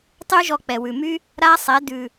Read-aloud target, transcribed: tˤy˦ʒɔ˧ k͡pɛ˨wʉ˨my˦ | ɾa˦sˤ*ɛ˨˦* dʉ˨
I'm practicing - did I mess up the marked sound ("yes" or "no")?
no